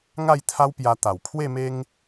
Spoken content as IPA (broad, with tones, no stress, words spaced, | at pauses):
ŋa˥˧jt̪ʰa˦wpja˧ t̪a˨˩wpʰwe˥˧me˦ŋ